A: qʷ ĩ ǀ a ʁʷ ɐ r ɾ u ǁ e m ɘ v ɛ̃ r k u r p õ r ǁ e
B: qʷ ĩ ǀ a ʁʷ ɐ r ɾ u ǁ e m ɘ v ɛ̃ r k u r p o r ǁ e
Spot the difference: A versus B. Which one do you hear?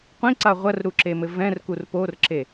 B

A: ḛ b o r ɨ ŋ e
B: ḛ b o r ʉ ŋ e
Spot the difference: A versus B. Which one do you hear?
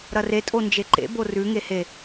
B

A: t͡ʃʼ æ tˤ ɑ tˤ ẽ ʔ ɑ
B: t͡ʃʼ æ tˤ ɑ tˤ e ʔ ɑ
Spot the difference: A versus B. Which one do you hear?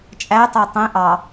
A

